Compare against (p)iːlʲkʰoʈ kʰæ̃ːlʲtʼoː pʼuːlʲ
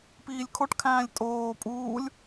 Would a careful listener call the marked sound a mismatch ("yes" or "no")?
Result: no